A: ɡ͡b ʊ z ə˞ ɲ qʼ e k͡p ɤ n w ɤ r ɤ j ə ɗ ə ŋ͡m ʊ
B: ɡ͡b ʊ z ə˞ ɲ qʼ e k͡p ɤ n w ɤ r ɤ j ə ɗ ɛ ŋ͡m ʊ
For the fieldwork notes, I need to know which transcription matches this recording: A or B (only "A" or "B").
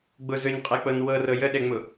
B